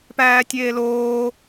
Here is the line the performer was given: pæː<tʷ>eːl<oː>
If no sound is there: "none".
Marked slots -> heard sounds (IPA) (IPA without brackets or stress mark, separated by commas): tʲ, oː